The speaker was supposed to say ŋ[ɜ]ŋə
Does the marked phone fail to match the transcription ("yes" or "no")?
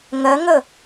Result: no